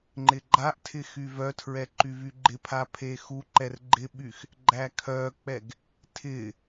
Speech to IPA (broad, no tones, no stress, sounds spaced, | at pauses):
ŋ͡ǃ ɪ ɡ͡ǃ a ʔ tʰ ɪ x y v œ tʰ ɹ ɛ ǃ y v y ɡ͡ǃ ɪ pʰ a pʰ e x u ǃ ɛ r ɡ͡ǃ ɪ ɓ y x | ɡ͡ǃ æ kʰ œ k͡p ɛ ɡ | tʰ ɪ